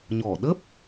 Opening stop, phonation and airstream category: implosive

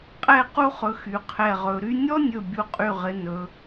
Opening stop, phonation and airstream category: ejective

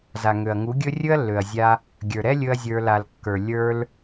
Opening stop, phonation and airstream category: plain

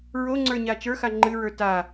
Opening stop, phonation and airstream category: click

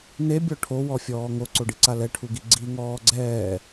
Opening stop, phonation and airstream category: plain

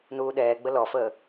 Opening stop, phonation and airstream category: implosive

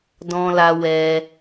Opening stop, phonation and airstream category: plain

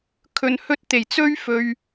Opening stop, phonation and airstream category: aspirated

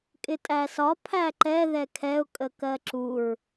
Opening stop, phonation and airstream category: ejective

